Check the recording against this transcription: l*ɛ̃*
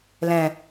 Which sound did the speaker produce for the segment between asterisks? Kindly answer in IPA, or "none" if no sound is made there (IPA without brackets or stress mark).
ɛ̃